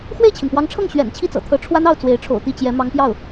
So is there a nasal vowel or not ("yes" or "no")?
no